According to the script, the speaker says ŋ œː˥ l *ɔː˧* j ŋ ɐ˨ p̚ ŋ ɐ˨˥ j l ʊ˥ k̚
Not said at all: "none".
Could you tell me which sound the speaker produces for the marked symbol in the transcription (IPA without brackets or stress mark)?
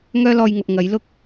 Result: ɔː˧